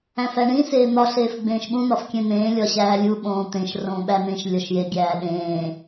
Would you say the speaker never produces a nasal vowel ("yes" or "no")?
no